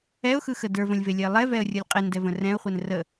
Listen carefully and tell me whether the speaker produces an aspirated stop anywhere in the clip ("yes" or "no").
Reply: no